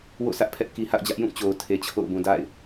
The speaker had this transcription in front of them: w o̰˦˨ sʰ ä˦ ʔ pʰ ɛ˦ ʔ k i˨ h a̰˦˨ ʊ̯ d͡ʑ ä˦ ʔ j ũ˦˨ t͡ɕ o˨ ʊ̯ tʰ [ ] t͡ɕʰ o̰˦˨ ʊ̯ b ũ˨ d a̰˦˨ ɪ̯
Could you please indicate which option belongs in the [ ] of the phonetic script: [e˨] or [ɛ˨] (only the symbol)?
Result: e˨